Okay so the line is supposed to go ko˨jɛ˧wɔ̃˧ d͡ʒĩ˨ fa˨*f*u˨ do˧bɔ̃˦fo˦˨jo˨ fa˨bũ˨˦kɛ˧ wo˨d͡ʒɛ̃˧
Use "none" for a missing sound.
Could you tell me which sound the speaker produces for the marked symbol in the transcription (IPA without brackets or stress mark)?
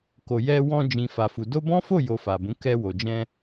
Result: f